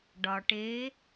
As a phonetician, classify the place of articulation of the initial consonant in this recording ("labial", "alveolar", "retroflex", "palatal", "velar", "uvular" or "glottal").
retroflex